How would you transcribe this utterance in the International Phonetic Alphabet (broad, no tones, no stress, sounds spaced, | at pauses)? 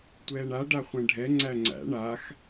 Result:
tʷ ɛː ɳ a ɖ a χʷ ɛ̃ ɖʱ ɛ ŋ͡ǀ æ ŋ͡ǀ æ̰ ɳ a x